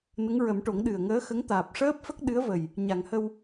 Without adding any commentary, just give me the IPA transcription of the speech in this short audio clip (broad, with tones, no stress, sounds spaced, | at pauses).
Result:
n ə˧˥ ŋ ɹ ə˨˩˦ m ʈ o˨˩˦ ŋ ɗ ɨ˨˩ ə̯ ŋ əː˧˥ x ə˧˥ ŋ t̪ aː˨˩ p̚ ʂ əː˦˥ p̚ f ə˦˥ k̚ ɗ ɨ˧˥ ə̯ v ə˨˩ j | ɲ a˨˩˨ ŋ h ə˧ w